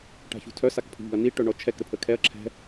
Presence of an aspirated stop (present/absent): present